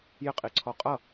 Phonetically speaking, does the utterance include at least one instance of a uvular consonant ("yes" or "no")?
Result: yes